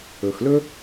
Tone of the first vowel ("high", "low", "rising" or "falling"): low